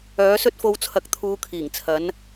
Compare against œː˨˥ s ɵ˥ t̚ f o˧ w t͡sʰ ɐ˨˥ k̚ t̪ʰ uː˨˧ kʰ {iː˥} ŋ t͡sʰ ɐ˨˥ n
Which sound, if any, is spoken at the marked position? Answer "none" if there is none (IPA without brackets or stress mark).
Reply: iː˨˩